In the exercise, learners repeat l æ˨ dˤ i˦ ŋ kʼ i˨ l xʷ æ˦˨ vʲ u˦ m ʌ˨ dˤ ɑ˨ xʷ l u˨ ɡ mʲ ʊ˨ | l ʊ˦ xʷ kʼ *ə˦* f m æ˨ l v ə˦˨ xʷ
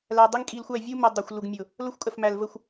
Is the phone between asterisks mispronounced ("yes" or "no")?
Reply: yes